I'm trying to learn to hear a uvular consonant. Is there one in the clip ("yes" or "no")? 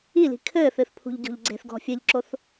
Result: no